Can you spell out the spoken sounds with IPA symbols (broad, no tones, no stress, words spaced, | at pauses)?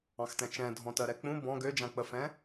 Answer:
ɑ̃xtɛ̃t͡ʃɛ̃dʱɔ̃ tɜɾɛk͡pũ bɔ̃ ɡød͡ʒãk͡pəfɛ̃